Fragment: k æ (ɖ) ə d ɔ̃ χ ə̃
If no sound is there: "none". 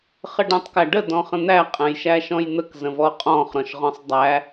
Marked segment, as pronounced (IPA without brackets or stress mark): ɖ